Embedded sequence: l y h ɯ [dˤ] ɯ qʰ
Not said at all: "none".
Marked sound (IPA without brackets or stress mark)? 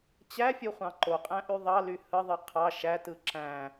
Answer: ðˤ